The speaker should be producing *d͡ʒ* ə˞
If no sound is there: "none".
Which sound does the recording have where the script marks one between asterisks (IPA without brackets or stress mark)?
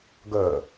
ɡ